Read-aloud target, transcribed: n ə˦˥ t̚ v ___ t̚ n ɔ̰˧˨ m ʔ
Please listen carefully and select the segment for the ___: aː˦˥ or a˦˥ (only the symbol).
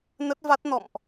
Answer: a˦˥